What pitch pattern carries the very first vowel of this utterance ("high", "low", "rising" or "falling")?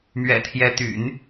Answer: low